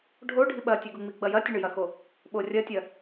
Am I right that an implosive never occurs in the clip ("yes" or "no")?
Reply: no